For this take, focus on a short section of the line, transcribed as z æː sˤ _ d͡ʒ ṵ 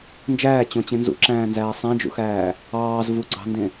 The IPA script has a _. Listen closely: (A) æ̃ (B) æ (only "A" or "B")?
A